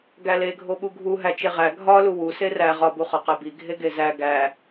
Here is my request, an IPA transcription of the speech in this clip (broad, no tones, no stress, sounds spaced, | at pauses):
ɡ æ l e ɡʱ o ɓ u ɡʱ u ɦ æ t͡ʃ e ʁ æ ɡʱ ɒ l u w u s e r æ ʁ ɒ b u χ ɒ q e b i ɡʱ e ɡ e z æ ɡ æ